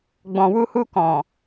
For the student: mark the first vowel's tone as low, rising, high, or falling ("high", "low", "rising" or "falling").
low